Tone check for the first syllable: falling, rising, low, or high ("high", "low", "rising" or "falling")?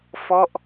falling